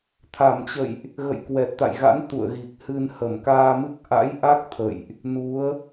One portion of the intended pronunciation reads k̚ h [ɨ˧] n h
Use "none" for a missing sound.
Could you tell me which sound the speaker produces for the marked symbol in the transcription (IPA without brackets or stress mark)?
ɨ˧